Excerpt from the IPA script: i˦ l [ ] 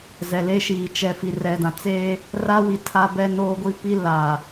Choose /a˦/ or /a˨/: a˨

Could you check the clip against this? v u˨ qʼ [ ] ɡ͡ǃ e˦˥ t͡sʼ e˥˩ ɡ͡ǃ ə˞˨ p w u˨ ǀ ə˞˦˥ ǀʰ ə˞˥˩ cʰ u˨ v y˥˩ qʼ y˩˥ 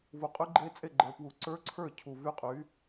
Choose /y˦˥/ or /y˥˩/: y˦˥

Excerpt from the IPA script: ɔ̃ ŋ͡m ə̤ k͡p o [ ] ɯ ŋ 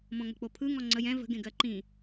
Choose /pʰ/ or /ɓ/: pʰ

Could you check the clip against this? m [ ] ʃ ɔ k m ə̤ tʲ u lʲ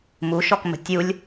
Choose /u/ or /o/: u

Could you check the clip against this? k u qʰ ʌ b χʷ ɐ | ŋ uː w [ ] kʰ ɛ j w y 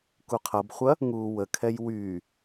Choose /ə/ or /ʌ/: ə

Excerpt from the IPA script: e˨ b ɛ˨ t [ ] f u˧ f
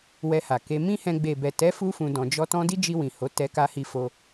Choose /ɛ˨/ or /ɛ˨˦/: ɛ˨˦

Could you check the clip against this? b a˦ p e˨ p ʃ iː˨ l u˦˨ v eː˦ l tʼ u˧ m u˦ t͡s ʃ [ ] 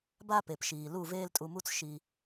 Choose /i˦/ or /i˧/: i˧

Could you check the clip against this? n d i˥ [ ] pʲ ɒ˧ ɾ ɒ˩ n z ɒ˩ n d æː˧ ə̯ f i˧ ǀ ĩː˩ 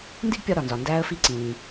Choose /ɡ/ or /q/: ɡ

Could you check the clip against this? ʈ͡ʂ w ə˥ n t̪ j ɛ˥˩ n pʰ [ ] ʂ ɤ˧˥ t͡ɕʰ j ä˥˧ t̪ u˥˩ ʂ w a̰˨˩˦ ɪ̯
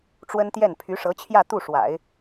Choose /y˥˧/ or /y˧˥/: y˧˥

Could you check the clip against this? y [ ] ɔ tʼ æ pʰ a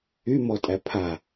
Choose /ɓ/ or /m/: m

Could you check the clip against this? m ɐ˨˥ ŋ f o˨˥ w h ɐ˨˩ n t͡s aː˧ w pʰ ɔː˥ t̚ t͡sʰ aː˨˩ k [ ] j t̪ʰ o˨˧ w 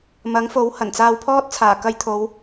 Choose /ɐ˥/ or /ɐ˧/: ɐ˧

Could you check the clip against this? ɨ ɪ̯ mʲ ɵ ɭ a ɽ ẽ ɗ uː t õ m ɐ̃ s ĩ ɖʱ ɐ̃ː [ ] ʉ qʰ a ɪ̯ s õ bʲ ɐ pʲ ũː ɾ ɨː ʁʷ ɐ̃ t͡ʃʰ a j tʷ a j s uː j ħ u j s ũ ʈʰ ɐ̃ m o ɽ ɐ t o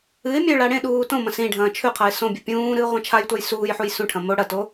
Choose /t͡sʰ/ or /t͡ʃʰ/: t͡ʃʰ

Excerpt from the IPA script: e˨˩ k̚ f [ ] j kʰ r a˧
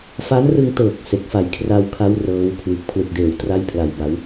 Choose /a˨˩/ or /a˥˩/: a˨˩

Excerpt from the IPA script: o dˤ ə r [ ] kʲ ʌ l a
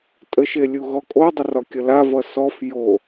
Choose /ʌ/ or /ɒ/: ɒ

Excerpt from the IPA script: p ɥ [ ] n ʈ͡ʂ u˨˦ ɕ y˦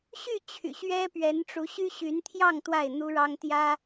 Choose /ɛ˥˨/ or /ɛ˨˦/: ɛ˨˦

